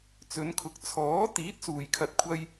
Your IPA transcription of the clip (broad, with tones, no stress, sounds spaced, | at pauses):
t͡s ɵ˨˧ n kʰ ʊ˨˥ k̚ t͡sʰ ɔː˨˥ t̪ iː˨˥ t̚ s uː˨ j kʰ ɐ˧ t̚ kʷʰ ɐ˥ j